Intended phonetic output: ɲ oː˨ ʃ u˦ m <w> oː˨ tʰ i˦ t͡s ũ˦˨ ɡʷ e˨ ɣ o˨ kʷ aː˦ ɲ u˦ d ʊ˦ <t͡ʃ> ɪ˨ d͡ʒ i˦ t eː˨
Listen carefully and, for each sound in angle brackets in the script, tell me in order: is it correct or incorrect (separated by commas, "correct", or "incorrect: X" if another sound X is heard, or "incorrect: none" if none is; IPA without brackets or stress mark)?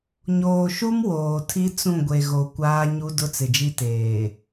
correct, incorrect: t͡s